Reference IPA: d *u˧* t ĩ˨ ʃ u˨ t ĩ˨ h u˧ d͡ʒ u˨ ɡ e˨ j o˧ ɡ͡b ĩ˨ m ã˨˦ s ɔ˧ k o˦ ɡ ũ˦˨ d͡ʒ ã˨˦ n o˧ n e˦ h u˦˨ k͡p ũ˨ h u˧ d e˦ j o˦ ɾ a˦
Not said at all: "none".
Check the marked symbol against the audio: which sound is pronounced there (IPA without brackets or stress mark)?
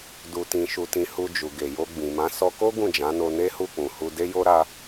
u˧